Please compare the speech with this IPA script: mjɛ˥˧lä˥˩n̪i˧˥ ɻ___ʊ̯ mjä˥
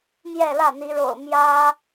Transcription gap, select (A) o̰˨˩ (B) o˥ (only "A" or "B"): A